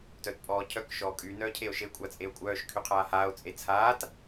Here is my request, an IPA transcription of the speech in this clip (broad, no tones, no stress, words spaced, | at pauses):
tœtpʼɔːcʰœk ʃɔːkʼyː nœːcʰeo̯ʃe kʷʼat͡sʼeo̯kʷʼœːʃ kʰyqʰaːhaːo̯ t͡sʼet͡sʰaːt